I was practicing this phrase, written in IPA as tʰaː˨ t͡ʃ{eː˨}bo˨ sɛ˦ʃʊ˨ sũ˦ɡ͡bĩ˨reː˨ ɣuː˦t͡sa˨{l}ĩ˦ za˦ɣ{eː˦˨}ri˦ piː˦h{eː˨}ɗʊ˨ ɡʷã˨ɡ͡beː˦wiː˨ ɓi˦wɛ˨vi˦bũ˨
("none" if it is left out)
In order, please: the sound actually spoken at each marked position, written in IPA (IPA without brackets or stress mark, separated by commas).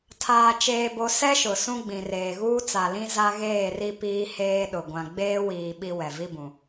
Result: eː˨, l, eː˦˨, eː˦